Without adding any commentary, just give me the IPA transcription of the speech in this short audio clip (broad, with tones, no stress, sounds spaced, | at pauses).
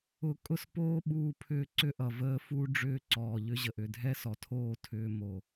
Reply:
ʊ˧ kʼ ʊ˦ s p oː˦ ɓ uː˧ pʰ ʏː˧ ǀ ʏ˦ ʔ ʌ˨ v əː˧ f u˦ ɖ͡ʐ ʏː˦ ǀ ɔː˨ ʎ ʏ˧ ʑ ə˨ ʔ ʏ˨ dʱ ɛ˦ s ɔ˨ tʰ oː˦˨ tʰ ʏː˧ m o˨